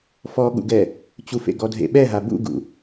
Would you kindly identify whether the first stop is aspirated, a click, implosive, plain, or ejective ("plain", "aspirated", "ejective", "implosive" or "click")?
implosive